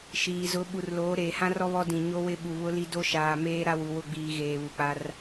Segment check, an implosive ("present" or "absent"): present